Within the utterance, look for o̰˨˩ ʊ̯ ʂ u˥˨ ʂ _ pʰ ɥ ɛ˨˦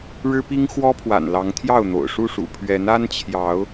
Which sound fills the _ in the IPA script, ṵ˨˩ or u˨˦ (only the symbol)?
ṵ˨˩